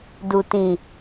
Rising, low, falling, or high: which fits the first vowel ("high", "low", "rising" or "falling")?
low